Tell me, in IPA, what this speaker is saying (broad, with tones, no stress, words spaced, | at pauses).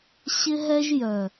ɕɪ˦ ɦɛ˧ʒ jœ˨